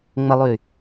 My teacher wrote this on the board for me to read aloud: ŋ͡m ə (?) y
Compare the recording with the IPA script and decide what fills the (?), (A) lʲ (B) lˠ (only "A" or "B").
B